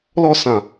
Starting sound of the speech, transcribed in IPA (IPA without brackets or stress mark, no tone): l